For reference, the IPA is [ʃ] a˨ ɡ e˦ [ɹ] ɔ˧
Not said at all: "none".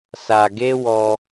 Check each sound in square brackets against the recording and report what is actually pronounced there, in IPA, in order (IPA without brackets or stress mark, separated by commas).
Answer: s, w